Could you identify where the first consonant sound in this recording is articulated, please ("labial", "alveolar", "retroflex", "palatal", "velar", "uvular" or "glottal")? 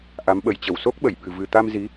glottal